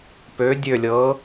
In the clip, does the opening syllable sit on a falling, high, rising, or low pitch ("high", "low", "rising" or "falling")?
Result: rising